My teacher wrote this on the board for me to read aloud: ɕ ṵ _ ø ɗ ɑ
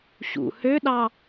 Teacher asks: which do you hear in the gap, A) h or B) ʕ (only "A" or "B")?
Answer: A